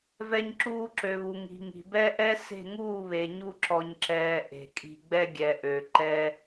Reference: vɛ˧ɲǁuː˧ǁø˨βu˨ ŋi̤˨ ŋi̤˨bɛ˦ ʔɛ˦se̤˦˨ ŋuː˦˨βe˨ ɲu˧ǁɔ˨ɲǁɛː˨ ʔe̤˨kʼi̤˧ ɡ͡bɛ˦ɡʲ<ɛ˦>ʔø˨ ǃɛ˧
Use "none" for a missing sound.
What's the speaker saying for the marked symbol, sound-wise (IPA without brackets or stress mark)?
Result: ɛ˨